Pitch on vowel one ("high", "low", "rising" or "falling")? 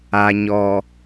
low